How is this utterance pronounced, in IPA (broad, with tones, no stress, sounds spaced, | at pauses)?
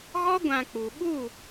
ɣ ɔ˦ ɡʷ ã˧ k͡p u˨ ɓ u˦˨